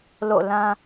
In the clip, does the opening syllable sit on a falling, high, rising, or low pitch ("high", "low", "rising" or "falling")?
falling